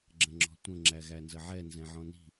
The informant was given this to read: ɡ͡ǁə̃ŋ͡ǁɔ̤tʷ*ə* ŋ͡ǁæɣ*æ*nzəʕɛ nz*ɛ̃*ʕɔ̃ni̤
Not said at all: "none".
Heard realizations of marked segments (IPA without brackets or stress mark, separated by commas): ə̃, æ, ɛ̃